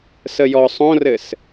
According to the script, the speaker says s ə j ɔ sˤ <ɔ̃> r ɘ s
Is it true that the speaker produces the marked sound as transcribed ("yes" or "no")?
no